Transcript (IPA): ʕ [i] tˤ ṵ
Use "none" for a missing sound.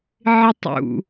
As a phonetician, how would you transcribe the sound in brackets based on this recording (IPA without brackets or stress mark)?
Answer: ɪ